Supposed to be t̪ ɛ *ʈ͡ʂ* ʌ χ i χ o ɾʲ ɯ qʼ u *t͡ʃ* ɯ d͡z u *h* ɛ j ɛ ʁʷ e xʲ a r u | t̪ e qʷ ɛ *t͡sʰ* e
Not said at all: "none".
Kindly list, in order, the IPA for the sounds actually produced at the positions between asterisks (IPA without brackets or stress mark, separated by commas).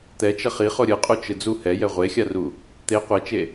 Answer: t͡ʃ, t͡ʃ, h, t͡ʃ